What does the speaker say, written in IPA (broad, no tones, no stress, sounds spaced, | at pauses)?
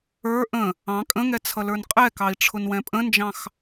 ə˞ ʔ ə̃ | ɑ̃ kʼ ə̃ ŋ ɛ t͡sʰ ʌ l ə˞ n qʼ ɛ k ɑ i̯ ʈ͡ʂʰ ʊ n w ɛ̃ pʼ ə̃ n d͡ʒ ɑ̃ x